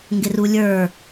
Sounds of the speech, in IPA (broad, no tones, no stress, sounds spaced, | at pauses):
ŋ ɡ ɪ r u lʲ ə˞